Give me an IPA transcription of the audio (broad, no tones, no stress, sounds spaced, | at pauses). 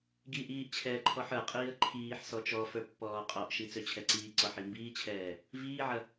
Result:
ɡ i ʔ iː ʔ t͡ɕʰ ɛː ǃʰ ɔ ħ ə˞ qʼ iː ə̯ ǃʰ iː ħ s ɔ t͡ʃ ɔ f ə˞ pː ɔː qʼ ɔ ʔ ʃ i t͡s ø t͡ɕʰ ɛ ǀ iː ǀ ɔ ħ i m b iː t͡ɕʰ ɛː | v iː ʕ ɐ